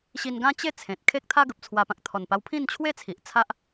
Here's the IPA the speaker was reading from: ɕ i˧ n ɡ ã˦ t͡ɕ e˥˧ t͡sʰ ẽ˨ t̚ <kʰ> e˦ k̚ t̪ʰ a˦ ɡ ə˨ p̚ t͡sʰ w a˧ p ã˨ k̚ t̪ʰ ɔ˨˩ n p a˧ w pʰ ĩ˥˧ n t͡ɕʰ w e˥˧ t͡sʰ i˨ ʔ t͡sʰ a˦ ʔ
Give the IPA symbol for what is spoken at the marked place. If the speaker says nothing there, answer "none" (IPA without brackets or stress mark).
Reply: kʰ